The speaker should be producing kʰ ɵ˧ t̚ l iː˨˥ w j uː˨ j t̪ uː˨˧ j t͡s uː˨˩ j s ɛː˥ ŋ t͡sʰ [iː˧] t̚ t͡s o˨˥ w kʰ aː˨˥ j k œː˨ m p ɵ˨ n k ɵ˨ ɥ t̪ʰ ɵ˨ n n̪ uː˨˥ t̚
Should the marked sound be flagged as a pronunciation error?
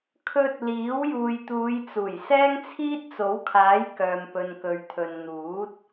yes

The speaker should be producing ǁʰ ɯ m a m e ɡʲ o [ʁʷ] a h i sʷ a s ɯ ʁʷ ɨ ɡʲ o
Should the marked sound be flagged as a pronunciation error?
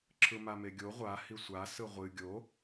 no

